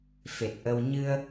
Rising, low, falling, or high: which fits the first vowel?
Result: low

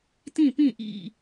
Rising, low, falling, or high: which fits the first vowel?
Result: falling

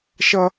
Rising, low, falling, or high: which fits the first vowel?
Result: high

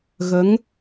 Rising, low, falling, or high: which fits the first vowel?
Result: rising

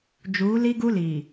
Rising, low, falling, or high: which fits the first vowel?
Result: rising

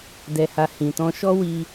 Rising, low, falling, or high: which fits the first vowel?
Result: low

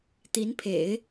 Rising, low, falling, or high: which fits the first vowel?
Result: rising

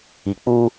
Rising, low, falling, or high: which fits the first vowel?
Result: low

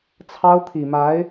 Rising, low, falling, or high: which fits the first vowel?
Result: high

